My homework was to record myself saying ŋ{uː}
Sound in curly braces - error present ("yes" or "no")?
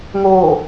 yes